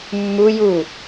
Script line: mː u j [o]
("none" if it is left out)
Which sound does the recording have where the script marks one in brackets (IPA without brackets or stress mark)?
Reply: u